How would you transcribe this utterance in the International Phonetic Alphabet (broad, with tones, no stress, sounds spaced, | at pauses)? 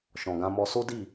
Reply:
ʃ ɔ̃˨ ɡ ã˧ m ɔ˧ s o˦ d i˦˨